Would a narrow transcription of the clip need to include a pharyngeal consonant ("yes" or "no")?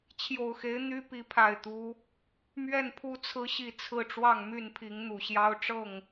no